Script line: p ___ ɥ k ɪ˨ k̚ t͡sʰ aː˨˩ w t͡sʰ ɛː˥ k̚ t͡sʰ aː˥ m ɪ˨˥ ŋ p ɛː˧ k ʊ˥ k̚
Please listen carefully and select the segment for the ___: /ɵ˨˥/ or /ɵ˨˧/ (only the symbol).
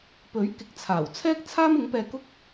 ɵ˨˥